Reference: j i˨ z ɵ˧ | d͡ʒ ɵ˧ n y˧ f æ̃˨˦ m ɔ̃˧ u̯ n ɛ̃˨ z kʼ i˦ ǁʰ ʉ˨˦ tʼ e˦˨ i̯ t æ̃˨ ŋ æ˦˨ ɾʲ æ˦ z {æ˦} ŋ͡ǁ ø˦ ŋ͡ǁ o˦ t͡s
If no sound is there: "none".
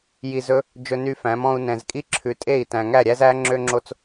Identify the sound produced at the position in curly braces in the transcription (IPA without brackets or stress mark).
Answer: æ˦